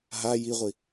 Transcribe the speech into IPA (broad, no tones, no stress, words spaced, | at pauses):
ɦa jiʁʷi